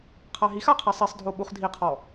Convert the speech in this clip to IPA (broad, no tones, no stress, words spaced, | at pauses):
qʰaɦixa qʰisˤisˤdʱo ɓuχdʱiqʰɔ